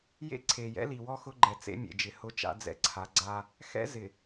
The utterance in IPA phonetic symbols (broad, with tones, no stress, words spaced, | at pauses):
jḛ˦ǀʰe˨jɛ̰˦ li˨wɔ˦ xʊ˦ɡ͡ǃɛ˨t͡sḛ˦ mʲḛ˨d͡ʒɪ˨ hʊ˦t͡ʃa̰˦d͡zɛ̰˦˨ǀʰa˨˦ ɡ͡ǀa˦ | xɛ̰˦zɪ˨